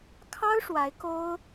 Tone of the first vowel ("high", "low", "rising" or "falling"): high